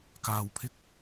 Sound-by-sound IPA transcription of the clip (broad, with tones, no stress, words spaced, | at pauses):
kaː˨w pʰɪ˥k̚